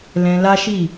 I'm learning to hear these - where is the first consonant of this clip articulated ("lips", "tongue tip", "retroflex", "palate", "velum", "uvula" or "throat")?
tongue tip